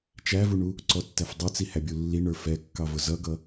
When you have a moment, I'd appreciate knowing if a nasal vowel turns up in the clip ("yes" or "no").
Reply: no